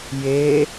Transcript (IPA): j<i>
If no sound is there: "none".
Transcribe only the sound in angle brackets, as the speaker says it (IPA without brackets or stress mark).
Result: e